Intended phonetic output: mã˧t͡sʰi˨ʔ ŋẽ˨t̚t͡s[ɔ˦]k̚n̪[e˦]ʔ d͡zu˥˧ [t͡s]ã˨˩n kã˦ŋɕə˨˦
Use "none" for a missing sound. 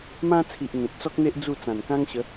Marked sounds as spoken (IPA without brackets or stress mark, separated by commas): ɔ˦, e˦, t͡s